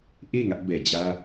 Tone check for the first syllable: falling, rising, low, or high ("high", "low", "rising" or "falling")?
falling